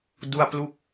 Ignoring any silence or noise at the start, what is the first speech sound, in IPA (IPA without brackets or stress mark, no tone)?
d